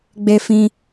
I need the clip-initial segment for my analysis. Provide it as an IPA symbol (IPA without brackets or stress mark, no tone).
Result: ɡ͡b